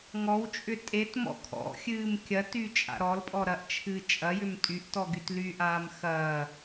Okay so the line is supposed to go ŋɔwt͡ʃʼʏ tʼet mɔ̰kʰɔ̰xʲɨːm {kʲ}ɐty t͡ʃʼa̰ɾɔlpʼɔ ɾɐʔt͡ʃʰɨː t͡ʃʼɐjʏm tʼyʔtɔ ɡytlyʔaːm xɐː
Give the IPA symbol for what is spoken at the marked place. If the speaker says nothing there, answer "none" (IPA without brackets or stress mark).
kʲ